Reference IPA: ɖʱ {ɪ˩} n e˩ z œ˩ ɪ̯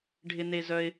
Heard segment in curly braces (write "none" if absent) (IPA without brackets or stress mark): ɪ˩